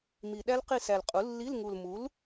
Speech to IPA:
m i˨˩ ɗ æ˦˥ l q i˦˨ s æ˨˩ l qʼ u˩˥ lː i˧˥˧ l ŋ u˨˩ l m u˩˥ l

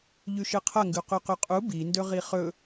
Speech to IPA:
ʎ ʉ ʃ ɨ qʰ ɐ ŋ ɡ ʉ q ʉ q ʉ qʼ u b i n d ɵ ʁ i χ ɵ

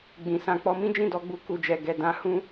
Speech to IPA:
ɡ͡b ĩ˨ s ã˧ k͡p ɔ˦ m ĩ˦ d͡ʒ ĩ˦˨ d ɔ˨˦ ɡ͡b u˧ k u˨ d͡ʒ ɛ˨ ɡ ɛ˨ d ã˧ h ũ˦

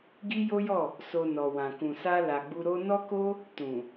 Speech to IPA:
ɡ i˦ j o˦ j ɔ˦˨ | s o˧ n ɔ˨ w ã˨ k ũ˨ s a˧ l a˨ ɡ͡b u˧ ɾ o˦ n ɔ˦ k o˦ | t ũ˨

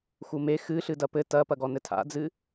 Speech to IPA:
x u m e x ɨ ɬ ɨ d ɐ p ɘ t ɐ p ɐ ɡ ɔ n ɘ tʰ a̰ d͡z ɨ

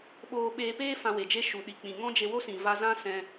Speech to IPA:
ɓ oː˧ ɓ eː˧ p eː˦ f ã˧ w e˨ d͡ʒ e˦ ʃ u˨ ɗ i˨ k͡p ĩ˨ ŋ ɔ̃˦ d͡ʒ e˧ w o˦ s ĩ˨ v a˧ z ã˦ s ɛ̃˧

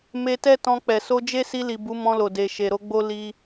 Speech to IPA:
m e˧ t ɛ˦ t ɔ̃˧ k͡p ɛ˨ s o˧ d͡ʒ e˦ s i˧ l i˨ b u˨˦ m ɔ̃˧ l o˨ d e˨ ʃ e˨ ɾ o˧ ɡ͡b o˦ l i˦

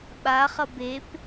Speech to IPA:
ɓ a χ ʌ b e p

